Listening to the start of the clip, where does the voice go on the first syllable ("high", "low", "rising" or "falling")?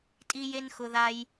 high